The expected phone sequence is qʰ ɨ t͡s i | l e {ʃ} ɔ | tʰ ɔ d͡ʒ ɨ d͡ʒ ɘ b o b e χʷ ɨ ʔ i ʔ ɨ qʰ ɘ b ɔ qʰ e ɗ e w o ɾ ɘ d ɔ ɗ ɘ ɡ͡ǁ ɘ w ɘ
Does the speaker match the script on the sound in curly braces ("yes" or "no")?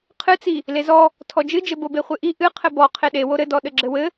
no